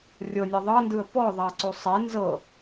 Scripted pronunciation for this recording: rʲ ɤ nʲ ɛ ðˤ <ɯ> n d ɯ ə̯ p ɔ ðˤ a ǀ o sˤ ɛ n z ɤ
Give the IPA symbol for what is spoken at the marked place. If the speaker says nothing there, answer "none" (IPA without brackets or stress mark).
ɤ